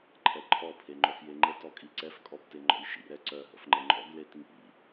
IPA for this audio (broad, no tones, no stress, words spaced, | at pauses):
ǃʰɛǃʰɔ pʰeŋ͡ǃœfjeŋ͡ǃə tɔkʼiǀɛf kʼɔbteŋ͡ǃɔ̰jʃḭ ɾɛǀœ ɦə̰fŋ͡ǃəŋ͡ǃɔ̰ɡ letŋḭ